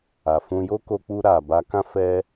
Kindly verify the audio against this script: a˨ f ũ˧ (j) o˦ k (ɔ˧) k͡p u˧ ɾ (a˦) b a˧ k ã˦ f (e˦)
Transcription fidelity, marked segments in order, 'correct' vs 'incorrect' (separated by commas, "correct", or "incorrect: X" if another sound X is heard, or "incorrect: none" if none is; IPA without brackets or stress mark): correct, incorrect: o˧, incorrect: a˨, incorrect: ɛ˦